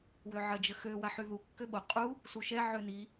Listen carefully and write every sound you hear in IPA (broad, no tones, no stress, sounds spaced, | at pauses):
w ø ʕ ɐ d͡ʒ ə x ø w a ħ y ð u kː ø ɓ o qʼ u | s u ʃ ɛ ʕ ø n i